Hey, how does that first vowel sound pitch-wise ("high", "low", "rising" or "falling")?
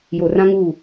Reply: low